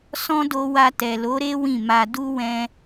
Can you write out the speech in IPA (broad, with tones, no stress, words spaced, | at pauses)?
sɔ̃˦do˧wa˧ tɛ˨lo˨˦ɾe˦ wĩ˦˨ma˧ du˦wɛ̃˧